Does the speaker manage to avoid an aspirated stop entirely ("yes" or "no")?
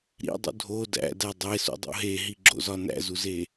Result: yes